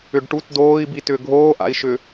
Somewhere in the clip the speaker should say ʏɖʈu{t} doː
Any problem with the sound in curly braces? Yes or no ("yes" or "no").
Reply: no